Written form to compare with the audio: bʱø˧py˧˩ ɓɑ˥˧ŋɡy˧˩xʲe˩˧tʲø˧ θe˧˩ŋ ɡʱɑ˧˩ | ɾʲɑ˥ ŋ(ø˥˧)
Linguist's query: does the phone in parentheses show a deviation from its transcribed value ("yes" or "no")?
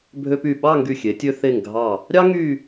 yes